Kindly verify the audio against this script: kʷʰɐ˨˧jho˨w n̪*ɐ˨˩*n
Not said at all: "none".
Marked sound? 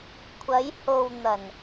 ɐ˨˩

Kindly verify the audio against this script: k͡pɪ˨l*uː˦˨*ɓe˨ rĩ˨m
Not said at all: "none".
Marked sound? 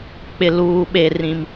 uː˨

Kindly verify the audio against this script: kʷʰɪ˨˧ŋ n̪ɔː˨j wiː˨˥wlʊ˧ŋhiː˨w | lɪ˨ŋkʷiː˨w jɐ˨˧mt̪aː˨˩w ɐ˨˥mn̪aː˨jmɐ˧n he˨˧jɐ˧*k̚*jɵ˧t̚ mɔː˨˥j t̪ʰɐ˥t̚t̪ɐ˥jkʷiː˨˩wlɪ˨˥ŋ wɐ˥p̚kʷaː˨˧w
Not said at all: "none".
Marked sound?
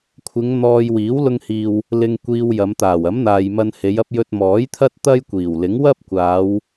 p̚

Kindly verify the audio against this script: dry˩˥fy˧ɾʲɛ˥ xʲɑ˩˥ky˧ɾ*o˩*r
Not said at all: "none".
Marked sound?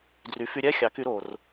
o˩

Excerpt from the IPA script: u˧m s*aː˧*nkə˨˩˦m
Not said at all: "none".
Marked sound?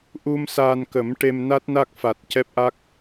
aː˧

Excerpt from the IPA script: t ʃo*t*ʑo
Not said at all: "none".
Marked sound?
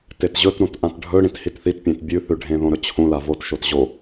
t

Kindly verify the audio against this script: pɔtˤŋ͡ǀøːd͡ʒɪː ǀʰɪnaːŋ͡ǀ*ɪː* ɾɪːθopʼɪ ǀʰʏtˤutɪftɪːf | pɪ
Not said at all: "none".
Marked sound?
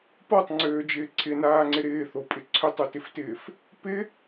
ɪ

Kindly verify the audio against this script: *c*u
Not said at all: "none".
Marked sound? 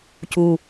c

